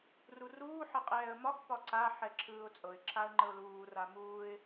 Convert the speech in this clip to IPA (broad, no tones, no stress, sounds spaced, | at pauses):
r u r uː ħ ə qʼ ɛː ə̯ m ɒ x p ɒ ǀ a ħ ɛ ǁʰ ɯː ʊ̯ t͡sʼ ɤ ɪ̯ ǁʰ a ə̯ ŋ͡ǃ ə ʊ̯ l uː r a m uː ɪ̯